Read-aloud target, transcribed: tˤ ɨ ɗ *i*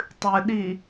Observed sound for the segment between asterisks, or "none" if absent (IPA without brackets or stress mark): i